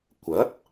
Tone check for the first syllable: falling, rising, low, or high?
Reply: rising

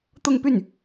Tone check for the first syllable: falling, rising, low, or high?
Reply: falling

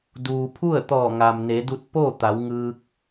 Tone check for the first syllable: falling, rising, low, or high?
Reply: low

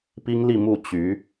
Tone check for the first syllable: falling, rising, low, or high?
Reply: high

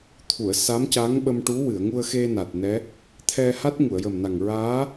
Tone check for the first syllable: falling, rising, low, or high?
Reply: low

